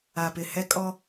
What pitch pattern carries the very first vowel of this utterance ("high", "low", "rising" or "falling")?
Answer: low